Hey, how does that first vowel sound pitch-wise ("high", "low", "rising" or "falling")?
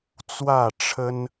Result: falling